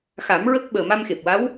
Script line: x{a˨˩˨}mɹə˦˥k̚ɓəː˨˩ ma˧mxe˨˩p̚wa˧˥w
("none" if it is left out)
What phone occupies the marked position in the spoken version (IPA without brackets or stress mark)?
a˨˩˦